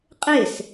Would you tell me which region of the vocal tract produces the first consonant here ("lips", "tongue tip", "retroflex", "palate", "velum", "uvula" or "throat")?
uvula